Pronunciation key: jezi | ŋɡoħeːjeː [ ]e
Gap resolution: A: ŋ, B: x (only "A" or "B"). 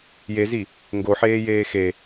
B